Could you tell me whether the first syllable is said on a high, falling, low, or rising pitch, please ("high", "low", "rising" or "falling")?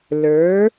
rising